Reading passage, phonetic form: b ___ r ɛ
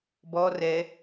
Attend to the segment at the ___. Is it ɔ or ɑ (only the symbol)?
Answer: ɔ